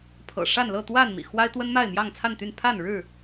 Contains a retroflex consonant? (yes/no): yes